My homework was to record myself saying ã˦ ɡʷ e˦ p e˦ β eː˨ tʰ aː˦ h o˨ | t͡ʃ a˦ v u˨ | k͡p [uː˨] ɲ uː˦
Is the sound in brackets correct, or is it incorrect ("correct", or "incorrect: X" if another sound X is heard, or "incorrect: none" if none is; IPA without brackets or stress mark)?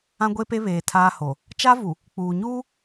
correct